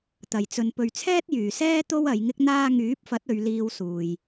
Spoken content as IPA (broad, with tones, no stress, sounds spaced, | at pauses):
t̪ ɐ˨˩ j t͡s ɵ˨ n p ɵ˨ ɥ t͡sʰ ɛː˥ t̚ j yː˨˩ s ɛː˥ t̪ o˥ w ɐ˨˧ j ŋ ɪ˥ k̚ n̪ aː˧ ŋ yː˨˥ p̚ f ɐ˨˥ t̚ ɵ˨˧ ɥ l iː˧ w s uː˧ j